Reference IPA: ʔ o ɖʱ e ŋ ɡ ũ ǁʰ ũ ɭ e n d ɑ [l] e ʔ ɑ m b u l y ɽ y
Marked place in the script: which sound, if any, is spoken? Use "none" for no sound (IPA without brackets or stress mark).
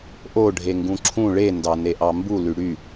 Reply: n